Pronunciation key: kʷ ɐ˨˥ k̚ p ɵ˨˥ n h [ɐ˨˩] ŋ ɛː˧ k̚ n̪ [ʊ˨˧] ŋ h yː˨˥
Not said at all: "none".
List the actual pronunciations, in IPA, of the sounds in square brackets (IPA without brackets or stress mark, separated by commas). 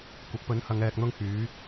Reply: ɐ˨˧, ʊ˥